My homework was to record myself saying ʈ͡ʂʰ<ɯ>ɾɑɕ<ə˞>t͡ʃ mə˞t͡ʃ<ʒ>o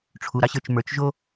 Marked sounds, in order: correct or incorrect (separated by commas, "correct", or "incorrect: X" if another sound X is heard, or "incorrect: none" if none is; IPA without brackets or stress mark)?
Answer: incorrect: u, correct, correct